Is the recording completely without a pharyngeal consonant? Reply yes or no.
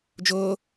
yes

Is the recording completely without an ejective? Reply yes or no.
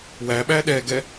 yes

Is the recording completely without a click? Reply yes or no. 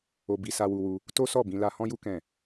yes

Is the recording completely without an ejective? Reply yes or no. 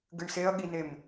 yes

